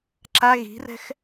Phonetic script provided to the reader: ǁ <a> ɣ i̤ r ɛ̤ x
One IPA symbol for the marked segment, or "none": a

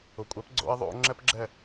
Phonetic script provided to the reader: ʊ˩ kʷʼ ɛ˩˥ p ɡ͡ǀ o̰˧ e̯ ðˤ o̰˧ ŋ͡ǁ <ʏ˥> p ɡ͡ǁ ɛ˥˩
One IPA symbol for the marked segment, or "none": ɛ˥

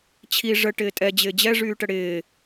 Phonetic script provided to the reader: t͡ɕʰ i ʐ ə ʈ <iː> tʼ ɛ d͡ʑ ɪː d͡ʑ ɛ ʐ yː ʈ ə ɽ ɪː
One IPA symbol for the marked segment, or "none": ɪː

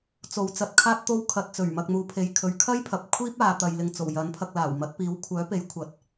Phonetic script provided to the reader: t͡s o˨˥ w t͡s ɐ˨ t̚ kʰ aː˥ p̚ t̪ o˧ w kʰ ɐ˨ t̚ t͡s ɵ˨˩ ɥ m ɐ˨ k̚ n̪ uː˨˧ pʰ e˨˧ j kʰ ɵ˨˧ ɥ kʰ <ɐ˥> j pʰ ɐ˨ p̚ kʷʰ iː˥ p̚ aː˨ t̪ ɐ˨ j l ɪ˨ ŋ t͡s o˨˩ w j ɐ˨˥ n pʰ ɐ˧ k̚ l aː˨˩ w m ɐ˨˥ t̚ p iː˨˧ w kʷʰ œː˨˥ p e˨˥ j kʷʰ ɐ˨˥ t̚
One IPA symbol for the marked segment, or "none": ɐ˥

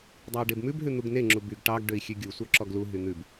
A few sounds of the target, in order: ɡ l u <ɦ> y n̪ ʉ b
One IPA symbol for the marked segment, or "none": ɦ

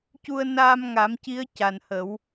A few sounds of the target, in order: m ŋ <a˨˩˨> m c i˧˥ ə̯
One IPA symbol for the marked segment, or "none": a˨˩˦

